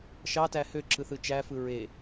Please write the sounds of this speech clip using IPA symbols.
ʃ ɑ t æ h ø ǁ ɯ θ ɯ t͡ʃ æ f ɯ ɹ e

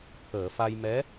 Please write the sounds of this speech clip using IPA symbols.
t̪ʰ əː˨˩˨ f a˧ j m ɛ˧˥

